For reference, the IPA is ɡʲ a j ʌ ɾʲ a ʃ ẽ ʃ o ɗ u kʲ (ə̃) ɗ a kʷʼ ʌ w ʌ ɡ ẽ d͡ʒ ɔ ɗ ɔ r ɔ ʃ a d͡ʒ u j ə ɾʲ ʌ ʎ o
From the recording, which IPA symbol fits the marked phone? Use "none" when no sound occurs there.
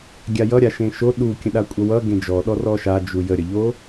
ə̃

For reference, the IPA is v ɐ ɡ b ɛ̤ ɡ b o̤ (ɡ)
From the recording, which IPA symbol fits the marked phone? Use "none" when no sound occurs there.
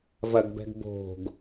ɡ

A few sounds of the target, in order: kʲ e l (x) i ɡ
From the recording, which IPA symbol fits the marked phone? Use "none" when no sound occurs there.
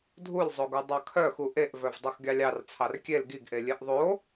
ɡ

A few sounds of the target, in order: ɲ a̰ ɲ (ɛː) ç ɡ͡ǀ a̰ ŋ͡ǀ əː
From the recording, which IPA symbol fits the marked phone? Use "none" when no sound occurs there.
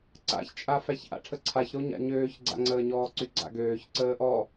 øː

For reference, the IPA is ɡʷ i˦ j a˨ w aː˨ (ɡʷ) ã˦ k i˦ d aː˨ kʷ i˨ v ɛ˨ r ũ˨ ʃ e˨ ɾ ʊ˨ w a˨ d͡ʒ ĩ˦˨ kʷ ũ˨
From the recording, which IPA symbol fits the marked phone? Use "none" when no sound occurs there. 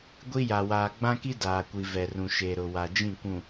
ɡ͡b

